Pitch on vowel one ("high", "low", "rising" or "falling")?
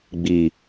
low